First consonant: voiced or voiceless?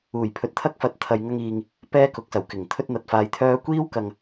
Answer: voiced